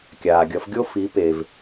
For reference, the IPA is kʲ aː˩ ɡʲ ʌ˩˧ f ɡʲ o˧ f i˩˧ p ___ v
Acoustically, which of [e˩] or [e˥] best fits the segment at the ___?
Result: e˩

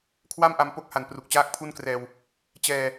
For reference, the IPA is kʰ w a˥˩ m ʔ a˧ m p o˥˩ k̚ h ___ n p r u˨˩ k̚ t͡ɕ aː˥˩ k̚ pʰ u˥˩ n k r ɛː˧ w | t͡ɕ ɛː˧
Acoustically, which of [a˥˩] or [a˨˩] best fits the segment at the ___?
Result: a˨˩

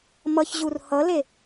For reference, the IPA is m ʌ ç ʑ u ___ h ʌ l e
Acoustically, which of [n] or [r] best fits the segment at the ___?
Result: r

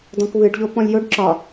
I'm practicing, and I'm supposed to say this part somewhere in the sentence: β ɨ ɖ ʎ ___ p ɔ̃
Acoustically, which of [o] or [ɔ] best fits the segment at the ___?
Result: o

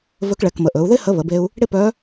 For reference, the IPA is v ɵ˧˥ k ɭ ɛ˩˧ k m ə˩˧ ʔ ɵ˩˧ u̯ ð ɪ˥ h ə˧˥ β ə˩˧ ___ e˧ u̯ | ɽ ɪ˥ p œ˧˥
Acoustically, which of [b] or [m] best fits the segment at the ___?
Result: b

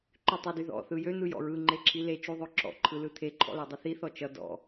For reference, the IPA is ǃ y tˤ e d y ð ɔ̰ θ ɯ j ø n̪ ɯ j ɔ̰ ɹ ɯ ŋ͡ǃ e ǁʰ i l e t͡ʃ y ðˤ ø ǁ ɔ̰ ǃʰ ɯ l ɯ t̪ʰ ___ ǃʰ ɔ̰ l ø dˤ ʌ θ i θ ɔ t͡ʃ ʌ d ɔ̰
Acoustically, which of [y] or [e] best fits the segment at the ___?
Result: e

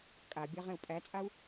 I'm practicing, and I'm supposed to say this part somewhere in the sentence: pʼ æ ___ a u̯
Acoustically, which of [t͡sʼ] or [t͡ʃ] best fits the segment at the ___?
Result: t͡sʼ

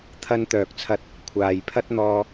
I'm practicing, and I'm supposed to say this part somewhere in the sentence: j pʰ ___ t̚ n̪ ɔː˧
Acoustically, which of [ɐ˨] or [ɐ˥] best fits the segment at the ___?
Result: ɐ˥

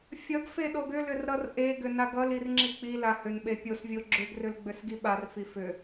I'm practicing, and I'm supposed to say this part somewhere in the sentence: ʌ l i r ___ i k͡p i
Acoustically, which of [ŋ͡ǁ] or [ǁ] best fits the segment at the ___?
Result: ŋ͡ǁ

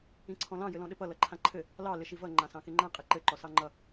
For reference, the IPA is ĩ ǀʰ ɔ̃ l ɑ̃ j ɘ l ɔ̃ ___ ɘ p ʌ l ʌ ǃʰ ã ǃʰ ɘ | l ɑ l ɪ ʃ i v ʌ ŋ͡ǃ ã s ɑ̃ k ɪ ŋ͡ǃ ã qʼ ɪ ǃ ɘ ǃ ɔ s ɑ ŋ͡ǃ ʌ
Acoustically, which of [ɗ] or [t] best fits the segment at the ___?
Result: ɗ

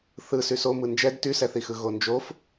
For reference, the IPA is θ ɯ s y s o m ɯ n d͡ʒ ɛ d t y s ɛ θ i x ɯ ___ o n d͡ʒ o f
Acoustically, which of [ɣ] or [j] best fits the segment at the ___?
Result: ɣ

